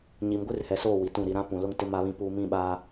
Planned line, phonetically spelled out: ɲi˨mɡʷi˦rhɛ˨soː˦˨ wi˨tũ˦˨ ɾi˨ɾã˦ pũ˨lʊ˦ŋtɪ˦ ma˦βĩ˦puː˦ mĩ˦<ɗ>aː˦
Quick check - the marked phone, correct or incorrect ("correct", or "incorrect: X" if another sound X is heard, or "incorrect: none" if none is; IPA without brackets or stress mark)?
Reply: incorrect: ɓ